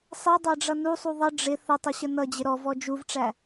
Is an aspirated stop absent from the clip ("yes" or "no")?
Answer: yes